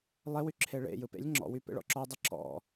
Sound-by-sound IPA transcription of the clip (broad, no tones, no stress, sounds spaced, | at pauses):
lˠ e w y ǁʰ e ɭ ḛ j ɯ p ḛ lʲ ŋ͡ǁ ɔ̰ w y p ḛ ɭ ɔ̰ ǁ ɔ dˤ ɪ ǁ ɔ̰